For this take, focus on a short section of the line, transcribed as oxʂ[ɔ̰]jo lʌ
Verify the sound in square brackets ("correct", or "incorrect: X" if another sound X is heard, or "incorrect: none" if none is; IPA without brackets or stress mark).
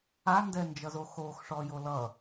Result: incorrect: ɔ